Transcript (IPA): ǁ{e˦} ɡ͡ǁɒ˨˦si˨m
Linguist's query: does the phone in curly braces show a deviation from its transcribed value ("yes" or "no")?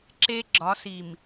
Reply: no